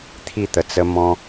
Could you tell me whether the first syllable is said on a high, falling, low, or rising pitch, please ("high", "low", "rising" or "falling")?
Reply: falling